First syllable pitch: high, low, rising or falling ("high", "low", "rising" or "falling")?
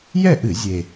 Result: falling